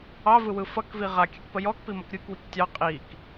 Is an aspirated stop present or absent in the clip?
absent